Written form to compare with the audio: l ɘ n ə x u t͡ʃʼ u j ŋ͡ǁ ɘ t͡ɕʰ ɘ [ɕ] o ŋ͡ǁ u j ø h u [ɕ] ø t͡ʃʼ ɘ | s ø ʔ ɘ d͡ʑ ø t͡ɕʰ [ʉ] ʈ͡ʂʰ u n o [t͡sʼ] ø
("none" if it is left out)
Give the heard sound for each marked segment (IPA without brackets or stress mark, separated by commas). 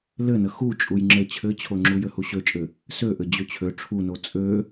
t͡ɕʰ, ɕ, ø, t͡sʼ